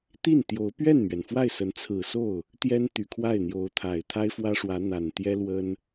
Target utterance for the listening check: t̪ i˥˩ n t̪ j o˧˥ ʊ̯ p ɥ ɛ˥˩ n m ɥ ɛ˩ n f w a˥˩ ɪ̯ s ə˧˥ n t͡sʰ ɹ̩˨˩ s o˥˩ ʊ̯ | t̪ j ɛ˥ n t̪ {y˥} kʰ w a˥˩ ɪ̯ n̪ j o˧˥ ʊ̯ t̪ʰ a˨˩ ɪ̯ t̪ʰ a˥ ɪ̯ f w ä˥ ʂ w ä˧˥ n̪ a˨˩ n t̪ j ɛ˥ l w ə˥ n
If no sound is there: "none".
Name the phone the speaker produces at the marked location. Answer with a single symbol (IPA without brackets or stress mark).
y˨˩